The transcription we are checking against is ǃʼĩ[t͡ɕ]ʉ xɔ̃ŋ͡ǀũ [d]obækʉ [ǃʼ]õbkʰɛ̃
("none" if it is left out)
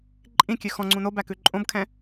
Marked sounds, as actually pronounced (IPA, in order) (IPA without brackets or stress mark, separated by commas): kʲ, n, ǃʼ